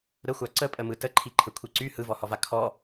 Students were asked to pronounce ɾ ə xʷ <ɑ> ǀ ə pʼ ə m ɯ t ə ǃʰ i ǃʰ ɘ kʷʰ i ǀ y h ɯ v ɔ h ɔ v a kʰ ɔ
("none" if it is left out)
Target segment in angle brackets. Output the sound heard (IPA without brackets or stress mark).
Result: a